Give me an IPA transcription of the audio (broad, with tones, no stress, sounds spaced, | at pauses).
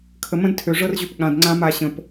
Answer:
kʰ ə˨ m ə̃˦ d tʰ ø˨ ʐ ɤ˦ r ʑ ø˧ p ɠ ã˨ d ŋ͡ǀ ã˧ m a˧ ɕ ə̃˧ p